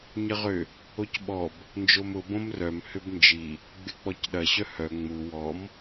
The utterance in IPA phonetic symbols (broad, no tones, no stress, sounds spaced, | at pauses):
ɲ ə ʁ ʏ | o c ɓ ɔ b | n d͡ʒ o m ʊ b õ m r œ m h ʏ b n d͡ʒ i | ɡ͡b ɪ k͡p ɔ c ɗ ɐ ɕ œ h œ ŋ͡m u w ɔ m